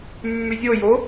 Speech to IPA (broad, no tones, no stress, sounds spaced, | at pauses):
mː ʉ zʲ o j o